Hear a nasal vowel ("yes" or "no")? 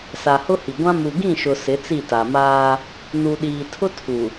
yes